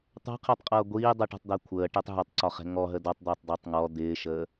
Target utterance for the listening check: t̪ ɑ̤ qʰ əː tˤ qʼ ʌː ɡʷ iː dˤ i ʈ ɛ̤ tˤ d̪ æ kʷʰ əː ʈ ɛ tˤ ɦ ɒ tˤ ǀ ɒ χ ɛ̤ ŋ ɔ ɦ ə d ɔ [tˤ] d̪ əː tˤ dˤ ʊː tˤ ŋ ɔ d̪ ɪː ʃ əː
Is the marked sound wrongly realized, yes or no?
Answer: no